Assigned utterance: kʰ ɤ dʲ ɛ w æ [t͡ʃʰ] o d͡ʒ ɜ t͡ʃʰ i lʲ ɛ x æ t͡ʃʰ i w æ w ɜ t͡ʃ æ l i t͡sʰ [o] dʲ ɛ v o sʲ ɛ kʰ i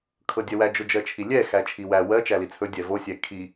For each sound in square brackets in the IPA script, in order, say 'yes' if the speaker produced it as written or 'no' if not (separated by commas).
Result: no, no